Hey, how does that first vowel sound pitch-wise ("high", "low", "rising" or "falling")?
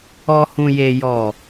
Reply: low